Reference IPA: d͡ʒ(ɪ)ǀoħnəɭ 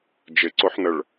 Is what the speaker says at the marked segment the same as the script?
yes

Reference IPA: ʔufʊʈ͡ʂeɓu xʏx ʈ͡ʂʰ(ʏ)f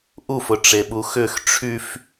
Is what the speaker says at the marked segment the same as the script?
no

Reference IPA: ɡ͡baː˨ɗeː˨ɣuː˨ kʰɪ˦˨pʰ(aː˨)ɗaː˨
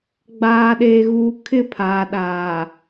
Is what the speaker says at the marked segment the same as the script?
yes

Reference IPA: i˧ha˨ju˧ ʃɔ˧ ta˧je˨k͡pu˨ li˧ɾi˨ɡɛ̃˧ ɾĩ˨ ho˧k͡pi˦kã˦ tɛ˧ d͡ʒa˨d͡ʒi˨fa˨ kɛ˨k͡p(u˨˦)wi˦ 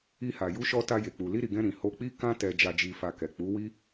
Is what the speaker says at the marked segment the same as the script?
yes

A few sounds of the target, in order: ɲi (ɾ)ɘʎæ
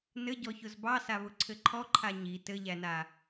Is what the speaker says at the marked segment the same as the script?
no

